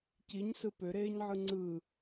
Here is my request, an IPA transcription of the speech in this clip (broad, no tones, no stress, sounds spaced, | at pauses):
c i ɲ s ɯ p ø ɾ eː ɲ ʕ ɯ ŋ͡ǀ ɯ